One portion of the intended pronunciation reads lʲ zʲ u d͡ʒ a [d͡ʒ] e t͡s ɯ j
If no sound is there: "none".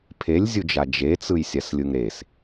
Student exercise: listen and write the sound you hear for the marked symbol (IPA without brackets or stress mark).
d͡ʒ